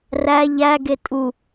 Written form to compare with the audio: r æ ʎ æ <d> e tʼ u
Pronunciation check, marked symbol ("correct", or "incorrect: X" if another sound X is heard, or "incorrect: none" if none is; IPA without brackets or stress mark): incorrect: ɡ